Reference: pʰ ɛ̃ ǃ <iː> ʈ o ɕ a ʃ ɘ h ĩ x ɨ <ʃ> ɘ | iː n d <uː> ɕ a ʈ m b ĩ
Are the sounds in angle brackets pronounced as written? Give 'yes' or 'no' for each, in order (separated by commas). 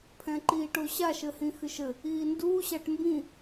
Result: yes, yes, yes